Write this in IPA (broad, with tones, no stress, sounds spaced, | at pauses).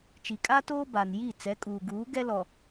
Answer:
t͡ʃ i˨ kʼ a˦ t oː˦ b a˨ n j i˦˨ t͡s ɛ˨˦ kʼ uː˨ ɡ uː˨˦ ɡ ɛ˦ l ɔ˨